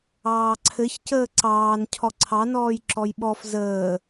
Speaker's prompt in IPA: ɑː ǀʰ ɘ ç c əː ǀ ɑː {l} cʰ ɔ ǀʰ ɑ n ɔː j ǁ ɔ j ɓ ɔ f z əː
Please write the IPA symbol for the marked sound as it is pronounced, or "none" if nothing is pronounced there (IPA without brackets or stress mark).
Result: n